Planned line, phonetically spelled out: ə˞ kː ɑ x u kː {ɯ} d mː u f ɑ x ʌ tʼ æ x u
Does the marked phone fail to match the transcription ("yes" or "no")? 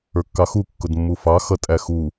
yes